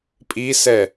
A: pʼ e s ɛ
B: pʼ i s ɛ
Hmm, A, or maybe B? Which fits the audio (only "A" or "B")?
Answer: B